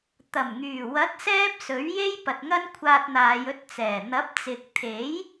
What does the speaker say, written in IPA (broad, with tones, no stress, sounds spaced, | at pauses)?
t̪ ɐ˨˩ m ŋ yː˨˩ w ɐ˨˥ t̚ s ɛː˥ p̚ s ɵ˨˥ ɥ j e˥ j p ɐ˨ t̚ ŋ ɐ˥ n kʷʰ aː˧ t̚ n̪ aː˨˧ j ɵ˧ t̚ t͡s ɛː˨˩ n̪ ɐ˨˥ p̚ t͡s ɪ˨ k̚ t̪ʰ e˨˥ j